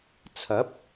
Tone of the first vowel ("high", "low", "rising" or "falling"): rising